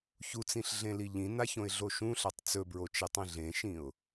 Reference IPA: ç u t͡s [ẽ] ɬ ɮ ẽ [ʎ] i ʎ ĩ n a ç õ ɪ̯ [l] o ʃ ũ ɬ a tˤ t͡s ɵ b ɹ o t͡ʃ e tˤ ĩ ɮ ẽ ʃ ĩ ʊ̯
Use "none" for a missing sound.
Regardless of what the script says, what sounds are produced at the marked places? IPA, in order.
ĩ, l, ɮ

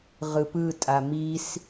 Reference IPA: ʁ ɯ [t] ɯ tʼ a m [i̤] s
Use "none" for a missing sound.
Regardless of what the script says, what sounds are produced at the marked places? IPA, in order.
p, i

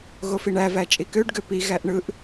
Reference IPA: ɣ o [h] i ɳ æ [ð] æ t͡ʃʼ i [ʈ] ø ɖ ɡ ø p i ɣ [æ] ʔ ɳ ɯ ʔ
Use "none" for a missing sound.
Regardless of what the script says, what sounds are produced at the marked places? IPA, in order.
f, v, k, æ

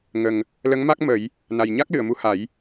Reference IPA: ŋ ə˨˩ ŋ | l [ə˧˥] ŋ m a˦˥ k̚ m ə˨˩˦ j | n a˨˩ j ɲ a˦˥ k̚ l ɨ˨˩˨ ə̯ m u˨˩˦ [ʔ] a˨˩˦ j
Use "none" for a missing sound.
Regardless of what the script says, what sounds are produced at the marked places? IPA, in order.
ə˧˥, h

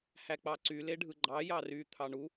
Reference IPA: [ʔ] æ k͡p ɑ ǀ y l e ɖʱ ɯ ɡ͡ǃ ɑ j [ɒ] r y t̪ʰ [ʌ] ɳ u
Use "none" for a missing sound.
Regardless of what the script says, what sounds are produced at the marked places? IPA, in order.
h, ɑ, ɑ

